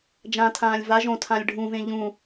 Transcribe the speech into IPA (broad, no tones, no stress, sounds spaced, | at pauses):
d͡ʒ ã tʰ ãː lʲ v a ʒ õ tʰ ã lʲ ɖʱ ũ v ẽ ʎ ũ